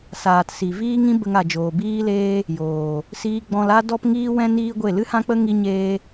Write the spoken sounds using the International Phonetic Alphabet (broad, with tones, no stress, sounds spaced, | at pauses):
s aː˨ t s i˨ v iː˦ ŋ ĩ˦ b ə˧ ŋ a˨ d͡ʒ oː˨ b iː˦ l eː˦ | j oː˨ | s iː˧ ɡ͡b ɔ̃˧ l a˦ d ɔ˦ p ŋ iː˦ w ɛ̃˦ n iː˦ ɡʷ e˦˨ l ɨ˦ h ã˦ k͡p ə˦ ŋ i˦ ɲ eː˦